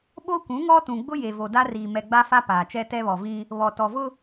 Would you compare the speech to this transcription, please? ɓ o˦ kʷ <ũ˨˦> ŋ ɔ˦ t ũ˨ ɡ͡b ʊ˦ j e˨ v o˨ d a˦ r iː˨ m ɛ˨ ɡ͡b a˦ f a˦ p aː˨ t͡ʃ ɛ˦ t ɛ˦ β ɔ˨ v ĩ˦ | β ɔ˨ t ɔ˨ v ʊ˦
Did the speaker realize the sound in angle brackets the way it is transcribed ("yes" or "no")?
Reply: yes